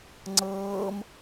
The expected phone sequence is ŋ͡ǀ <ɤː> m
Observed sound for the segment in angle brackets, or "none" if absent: ɤː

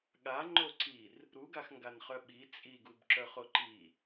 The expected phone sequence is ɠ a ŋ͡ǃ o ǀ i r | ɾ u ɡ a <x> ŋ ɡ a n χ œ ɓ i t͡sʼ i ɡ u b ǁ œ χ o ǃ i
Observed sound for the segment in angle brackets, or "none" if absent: x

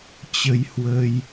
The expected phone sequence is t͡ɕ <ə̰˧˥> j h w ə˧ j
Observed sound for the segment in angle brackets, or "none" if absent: ə˧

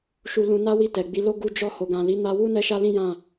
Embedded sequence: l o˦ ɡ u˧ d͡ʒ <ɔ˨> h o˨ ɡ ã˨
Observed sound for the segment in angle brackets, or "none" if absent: ɔ˧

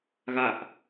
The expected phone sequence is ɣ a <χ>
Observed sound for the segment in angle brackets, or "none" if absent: ʔ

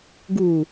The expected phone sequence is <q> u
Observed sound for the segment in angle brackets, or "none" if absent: ɡ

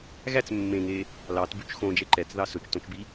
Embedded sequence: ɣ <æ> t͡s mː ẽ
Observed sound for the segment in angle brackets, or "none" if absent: æ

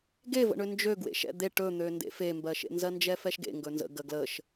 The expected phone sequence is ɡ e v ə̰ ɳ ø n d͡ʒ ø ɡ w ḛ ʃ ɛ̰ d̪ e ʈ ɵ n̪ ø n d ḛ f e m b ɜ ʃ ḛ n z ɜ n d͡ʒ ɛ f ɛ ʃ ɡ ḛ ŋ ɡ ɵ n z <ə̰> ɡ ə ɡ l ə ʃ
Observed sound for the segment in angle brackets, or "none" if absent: ə̰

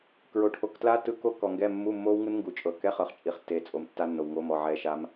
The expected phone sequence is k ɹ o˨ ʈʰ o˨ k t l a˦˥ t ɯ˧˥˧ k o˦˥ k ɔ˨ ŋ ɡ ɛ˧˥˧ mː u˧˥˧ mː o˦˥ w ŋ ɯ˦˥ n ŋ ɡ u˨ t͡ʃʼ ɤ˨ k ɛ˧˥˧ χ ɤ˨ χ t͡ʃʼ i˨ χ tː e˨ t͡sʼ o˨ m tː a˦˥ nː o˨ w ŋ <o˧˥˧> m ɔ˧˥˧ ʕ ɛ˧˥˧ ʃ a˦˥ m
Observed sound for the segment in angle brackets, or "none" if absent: o˧˥˧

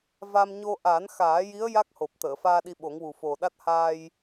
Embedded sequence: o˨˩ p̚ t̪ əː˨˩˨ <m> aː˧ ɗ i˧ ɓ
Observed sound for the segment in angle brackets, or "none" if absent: f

